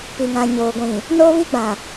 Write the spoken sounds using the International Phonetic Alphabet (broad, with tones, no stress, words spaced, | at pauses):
pi˨ŋã˨ ɲoː˨ɡʷĩ˨ | noː˦βi˦ɡ͡bã˨